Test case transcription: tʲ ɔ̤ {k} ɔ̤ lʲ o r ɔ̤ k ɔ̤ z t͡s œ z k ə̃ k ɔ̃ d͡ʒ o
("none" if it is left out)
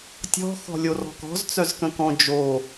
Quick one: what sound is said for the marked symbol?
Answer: x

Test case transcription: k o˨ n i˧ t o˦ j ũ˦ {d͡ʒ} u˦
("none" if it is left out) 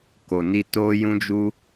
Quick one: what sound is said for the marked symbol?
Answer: d͡ʒ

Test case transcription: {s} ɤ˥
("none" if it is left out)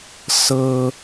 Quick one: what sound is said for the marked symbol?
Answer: s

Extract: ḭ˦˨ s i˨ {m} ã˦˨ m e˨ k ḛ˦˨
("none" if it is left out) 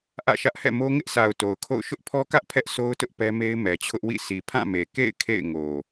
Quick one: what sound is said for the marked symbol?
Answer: pʰ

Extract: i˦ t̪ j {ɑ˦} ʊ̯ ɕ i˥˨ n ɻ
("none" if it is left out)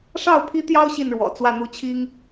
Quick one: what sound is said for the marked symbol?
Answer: ɑ˦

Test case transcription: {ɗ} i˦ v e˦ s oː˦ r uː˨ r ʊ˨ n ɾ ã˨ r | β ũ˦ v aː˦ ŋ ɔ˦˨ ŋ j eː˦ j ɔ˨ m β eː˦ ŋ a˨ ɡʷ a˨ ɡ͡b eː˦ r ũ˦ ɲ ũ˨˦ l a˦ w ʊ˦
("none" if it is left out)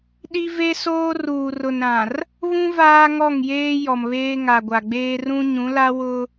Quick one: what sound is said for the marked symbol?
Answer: ɗ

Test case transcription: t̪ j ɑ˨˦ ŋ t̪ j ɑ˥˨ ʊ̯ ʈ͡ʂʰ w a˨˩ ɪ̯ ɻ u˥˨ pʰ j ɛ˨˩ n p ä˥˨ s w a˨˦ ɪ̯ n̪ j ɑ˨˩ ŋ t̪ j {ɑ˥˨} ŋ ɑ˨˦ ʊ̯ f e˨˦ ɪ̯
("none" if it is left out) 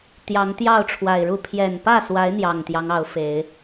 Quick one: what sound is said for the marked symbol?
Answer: ɑ˦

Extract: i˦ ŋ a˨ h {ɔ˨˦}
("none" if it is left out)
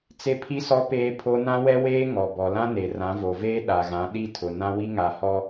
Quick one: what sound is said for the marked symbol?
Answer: ɔ˦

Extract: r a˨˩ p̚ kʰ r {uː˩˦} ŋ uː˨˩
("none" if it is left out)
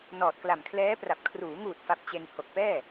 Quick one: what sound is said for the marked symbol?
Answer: uː˩˦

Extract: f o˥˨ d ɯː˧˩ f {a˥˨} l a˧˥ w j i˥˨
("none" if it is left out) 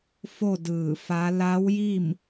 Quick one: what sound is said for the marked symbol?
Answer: a˧˥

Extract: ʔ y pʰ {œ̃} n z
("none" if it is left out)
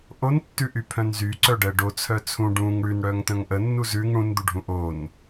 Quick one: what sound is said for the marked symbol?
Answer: œ̃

